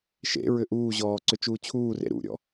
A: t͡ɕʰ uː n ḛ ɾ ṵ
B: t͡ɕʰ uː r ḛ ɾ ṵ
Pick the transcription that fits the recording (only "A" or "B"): B